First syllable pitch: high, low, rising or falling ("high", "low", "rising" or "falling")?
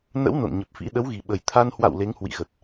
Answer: rising